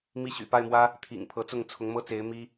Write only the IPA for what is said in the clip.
m i˥˩ ɕ y̰˨˩ p a˥˩ ɪ̯ m w ä˥ | t̪ʰ ḭ˨˩ ŋ pʰ ɤ˧˥ t͡s ʊ˥˩ ŋ t͡sʰ ʊ˧˥ ŋ m ɤ˥ t͡s e˧˥ ɪ̯ m i˥

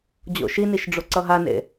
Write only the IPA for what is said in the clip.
d͡ʑ o̰ ʃ i n i ʃ ɖ͡ʐ o ǀ ʌ ɦ a n ḛ

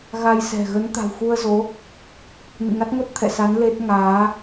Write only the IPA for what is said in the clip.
ɣ a˧ j s ɛ̤˨˩ ɣ ə˨˦ n t̪ a̤˨˩ w x u˧ ə̯ z o˨˦ | n ɨ̰˧˨ ŋ a˦˥ t̚ ŋ o˦˥ t̚ t̪ʰ ɛ̰˧˨ s a˨˦ n l e˦˥ t̚ ŋ aː˨˦

